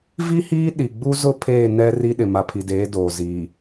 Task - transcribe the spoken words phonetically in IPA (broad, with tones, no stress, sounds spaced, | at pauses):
v i˦ h iː˦ ɗ i˨ ɡ͡b u˦ z ʊ˦ pʰ eː˦˨ n ɛ˦ r i˦ ɗ ɪ˨ m a˨ pʰ i˨ d eː˨˦ d oː˨ z iː˨